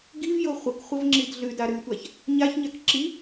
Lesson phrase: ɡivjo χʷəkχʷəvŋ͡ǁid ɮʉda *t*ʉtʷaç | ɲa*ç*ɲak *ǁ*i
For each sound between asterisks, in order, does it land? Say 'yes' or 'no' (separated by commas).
no, yes, yes